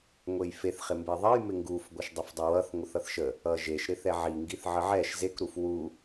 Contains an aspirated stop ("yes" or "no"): no